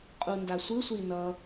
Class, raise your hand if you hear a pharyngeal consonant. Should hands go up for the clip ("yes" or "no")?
no